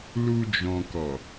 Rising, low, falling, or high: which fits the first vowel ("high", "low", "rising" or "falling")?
low